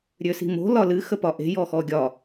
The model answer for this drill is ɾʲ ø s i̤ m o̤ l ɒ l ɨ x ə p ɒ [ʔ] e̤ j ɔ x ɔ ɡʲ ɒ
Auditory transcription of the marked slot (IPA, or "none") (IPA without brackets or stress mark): ʔ